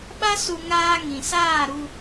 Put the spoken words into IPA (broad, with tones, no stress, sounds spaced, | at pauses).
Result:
ɓ a˦ s u˧ ŋ aː˧ ŋ ĩ˨ s aː˦˨ ɾ u˧